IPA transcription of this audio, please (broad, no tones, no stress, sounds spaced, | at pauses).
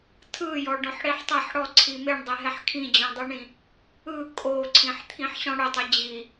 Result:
tʰ ɯ j ɔ ɖ ɔ̃ ħ ɽ i ħ tˤ a ħ ɽ ɔ ǀʰ i m e ɳ dˤ e ɦ ɛ ħ kʰ ĩ d͡ʑ ɔ̃ dˤ ɯ ɳ ĩ | ɯ kʼ o ǀʰ ĩ ħ t̪ʰ ĩ ħ ɕ ɔ̃ ɽ ɵ tˤ ɯ d͡ʑ i